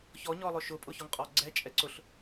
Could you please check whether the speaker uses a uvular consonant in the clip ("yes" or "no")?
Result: yes